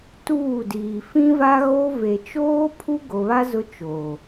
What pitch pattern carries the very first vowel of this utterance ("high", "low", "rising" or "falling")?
falling